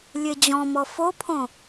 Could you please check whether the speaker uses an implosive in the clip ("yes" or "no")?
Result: no